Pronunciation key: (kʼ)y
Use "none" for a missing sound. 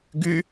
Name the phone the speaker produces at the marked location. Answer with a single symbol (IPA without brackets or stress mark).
ɡ